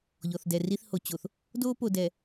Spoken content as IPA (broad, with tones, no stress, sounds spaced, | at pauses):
ʎ ɔ˨ θ d ɛ˨ r i˦ θ h o˨ t͡ɕ o˨ θ | d o˦ p o˨ d ɛ˨